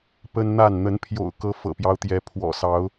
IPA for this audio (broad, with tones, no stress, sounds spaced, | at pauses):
p ə˦ n n̪ a˥˨ n n̪ ə˨˦ n pʰ j o̰˨˩ ʊ̯ k ɤ˨˦ f ɤ̰˨˩ p j ɑ˦ ʊ̯ t̪ j ɛ˨˦ pʰ w ɔ̰˨˩ s ɑ˨˦ ʊ̯